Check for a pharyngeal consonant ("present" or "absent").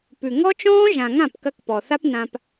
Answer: absent